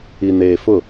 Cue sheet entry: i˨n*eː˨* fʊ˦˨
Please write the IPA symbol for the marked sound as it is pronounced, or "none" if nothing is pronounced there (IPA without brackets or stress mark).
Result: eː˨